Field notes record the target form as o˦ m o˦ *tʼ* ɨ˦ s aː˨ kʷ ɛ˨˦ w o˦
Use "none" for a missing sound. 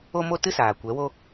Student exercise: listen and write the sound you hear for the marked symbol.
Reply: t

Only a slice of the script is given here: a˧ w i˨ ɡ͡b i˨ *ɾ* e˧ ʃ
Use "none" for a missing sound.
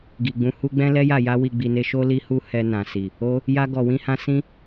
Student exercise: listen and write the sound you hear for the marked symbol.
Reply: n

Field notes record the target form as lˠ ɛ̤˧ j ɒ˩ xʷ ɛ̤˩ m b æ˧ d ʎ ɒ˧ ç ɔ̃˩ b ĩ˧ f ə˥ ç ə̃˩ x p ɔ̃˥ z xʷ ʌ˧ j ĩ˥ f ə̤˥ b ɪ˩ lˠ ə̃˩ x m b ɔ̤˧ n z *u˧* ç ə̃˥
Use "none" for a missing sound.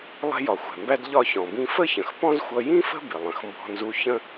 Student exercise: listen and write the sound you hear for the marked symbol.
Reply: u˧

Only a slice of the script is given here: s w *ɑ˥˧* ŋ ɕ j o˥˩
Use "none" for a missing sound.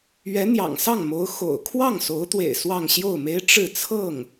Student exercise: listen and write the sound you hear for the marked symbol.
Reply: ɑ˥˧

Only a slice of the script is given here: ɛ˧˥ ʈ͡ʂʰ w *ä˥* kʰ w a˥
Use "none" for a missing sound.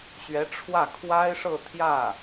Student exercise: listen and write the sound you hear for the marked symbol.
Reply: ä˥˩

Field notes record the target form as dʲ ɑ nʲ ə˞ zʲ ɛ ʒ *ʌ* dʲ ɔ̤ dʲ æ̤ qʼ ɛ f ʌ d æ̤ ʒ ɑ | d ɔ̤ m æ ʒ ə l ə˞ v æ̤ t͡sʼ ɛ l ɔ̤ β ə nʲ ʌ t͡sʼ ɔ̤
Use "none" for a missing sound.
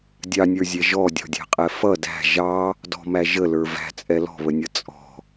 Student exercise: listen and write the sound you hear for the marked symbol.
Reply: ɔ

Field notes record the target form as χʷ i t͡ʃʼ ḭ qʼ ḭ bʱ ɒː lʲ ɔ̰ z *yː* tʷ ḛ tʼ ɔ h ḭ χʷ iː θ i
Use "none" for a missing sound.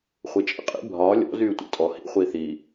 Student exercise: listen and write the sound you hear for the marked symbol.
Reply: yː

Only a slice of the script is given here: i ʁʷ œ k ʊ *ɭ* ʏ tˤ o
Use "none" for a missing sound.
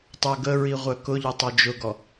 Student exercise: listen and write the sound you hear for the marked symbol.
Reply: ʎ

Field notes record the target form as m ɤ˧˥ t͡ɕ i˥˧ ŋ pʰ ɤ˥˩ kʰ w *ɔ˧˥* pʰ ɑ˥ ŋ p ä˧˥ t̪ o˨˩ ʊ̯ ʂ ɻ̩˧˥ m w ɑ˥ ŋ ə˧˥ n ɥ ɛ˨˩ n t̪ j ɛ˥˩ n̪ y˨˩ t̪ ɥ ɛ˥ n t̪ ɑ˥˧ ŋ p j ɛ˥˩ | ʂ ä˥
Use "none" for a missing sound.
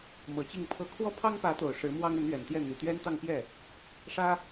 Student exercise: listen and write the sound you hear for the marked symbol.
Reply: ɔ˥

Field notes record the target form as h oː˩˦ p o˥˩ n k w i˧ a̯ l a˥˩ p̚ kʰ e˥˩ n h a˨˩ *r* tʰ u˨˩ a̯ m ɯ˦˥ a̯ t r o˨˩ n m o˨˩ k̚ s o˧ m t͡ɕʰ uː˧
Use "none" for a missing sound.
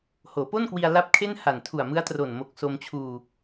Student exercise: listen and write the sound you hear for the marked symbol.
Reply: n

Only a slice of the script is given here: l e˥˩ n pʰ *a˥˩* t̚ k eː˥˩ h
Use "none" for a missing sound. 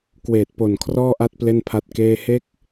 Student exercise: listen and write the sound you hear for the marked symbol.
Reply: a˦˥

